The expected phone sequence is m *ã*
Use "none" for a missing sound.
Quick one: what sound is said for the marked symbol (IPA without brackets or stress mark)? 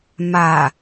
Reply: a